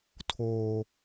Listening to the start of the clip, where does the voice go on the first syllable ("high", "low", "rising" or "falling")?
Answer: low